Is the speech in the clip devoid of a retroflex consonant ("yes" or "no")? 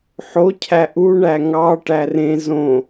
no